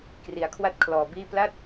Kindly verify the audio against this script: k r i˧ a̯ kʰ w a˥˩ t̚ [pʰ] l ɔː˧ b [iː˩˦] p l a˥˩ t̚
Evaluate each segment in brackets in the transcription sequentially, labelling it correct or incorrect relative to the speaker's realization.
incorrect: kʰ, incorrect: iː˥˩

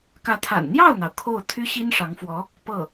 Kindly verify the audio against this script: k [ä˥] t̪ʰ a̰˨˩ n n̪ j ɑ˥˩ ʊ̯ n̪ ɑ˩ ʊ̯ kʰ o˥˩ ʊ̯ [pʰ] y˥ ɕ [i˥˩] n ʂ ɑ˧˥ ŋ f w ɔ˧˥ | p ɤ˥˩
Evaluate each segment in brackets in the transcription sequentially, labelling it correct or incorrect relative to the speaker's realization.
incorrect: ä˧˥, incorrect: t̪ʰ, incorrect: i˥

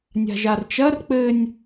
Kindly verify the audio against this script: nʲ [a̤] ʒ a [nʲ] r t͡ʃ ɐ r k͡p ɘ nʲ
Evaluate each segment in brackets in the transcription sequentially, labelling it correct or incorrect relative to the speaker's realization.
correct, incorrect: none

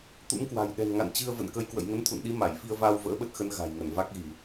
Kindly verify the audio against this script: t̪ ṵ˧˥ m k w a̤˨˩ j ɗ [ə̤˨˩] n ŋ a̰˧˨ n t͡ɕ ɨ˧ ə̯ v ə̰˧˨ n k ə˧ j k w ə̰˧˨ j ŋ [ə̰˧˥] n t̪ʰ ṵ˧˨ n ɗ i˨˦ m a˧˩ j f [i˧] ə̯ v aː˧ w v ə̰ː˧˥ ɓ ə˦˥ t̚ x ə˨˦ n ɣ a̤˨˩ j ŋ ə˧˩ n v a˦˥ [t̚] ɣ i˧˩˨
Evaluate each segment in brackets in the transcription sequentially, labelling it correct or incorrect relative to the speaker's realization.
incorrect: ɛ̤˨˩, incorrect: ə˨˦, correct, incorrect: k̚

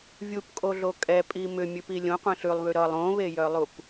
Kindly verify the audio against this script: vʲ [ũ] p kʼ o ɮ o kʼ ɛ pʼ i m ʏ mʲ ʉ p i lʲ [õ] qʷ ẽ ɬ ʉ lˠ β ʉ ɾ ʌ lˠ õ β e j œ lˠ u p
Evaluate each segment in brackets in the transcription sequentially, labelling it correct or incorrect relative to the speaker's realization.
incorrect: u, correct

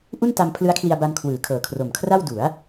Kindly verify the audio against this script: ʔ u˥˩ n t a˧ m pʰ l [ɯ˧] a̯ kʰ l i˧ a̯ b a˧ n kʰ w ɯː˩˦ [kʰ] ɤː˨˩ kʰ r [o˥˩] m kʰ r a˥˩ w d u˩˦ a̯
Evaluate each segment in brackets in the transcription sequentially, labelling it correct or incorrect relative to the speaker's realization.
incorrect: ɯ˦˥, correct, incorrect: o˨˩

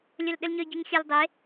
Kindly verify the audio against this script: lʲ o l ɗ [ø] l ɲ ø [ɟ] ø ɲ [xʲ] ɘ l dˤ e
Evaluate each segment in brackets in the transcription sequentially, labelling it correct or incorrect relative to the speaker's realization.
incorrect: ɘ, correct, correct

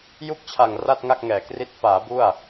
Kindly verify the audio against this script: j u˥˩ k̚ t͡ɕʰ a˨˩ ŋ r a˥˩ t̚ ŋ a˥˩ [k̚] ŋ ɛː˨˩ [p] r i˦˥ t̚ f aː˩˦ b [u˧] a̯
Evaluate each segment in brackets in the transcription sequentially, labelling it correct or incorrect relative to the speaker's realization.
correct, incorrect: k, incorrect: u˥˩

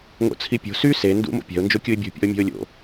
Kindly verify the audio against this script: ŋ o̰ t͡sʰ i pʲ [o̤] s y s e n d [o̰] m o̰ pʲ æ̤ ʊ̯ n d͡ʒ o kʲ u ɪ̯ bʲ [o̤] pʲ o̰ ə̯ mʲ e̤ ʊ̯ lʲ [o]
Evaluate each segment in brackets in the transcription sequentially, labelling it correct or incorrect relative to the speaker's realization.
correct, incorrect: ṵ, correct, incorrect: o̰

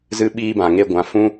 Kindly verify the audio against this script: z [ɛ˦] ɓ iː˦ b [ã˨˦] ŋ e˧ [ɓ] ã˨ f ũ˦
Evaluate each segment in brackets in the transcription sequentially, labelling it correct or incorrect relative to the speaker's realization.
incorrect: ɨ˦, incorrect: ã˨, incorrect: ɡʷ

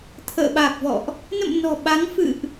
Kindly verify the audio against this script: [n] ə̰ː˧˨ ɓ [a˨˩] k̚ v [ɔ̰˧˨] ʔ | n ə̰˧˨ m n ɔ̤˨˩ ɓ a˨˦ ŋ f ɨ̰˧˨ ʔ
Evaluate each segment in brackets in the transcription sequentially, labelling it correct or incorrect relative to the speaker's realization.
incorrect: t̪ʰ, correct, correct

